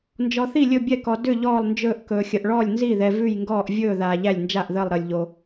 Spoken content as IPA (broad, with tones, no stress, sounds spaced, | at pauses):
n d͡ʒ ɔ˨ θ i˥˩ lʲ ɵ˥˩ bʲ ɛ˥˩ k ɔ˨ d ʏ˥˩ ʎ ɔː˥˩ lˠ n d͡ʒ ɵː˥˩ ʔ k ɵː˨ xʲ ə˨ ʔ ɭ ɔː˥˩ lʲ n z i˥˩ ð ɛ˨ v ʉ˥˩ j ŋ ɡ ɔː˥˩ ʔ vʲ ɵː˥˩ ð aː˨ ʎ æ˥˩ lʲ n d͡ʒ a˥˩ ʔ ð əː˥˩ lˠ ɾ əː˨ lʲ ʎ o˨